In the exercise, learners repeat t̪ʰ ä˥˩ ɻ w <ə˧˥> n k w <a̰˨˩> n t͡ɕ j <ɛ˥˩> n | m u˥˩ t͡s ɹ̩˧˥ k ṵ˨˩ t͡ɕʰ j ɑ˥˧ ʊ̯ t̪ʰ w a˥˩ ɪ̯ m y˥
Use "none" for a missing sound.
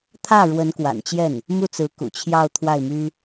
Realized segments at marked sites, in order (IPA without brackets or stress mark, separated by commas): ə˧˥, a̰˨˩, ɛ˥˩